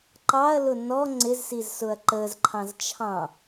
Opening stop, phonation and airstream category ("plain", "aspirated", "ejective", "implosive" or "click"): click